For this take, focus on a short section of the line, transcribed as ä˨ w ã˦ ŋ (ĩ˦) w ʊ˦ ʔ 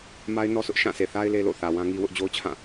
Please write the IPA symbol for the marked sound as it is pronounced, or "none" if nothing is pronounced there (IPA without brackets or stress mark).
i˦